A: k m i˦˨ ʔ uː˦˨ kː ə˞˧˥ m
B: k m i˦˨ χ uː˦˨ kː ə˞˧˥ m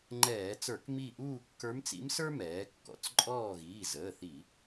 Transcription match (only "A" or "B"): A